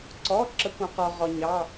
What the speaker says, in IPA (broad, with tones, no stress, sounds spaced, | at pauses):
ǀ ɔ˩˧˩ ǁ ə˩˧ kʷ ɑ̃˩˧ q ɔ˩ ʁ ɔ˩ ɲ ɑ˩˧˩